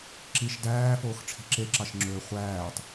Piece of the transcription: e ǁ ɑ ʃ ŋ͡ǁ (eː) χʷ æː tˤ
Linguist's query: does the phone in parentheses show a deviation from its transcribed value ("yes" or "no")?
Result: yes